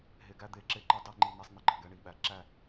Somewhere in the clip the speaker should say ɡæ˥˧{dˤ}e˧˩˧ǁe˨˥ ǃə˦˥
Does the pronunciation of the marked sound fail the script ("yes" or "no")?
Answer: yes